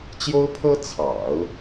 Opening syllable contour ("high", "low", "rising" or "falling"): high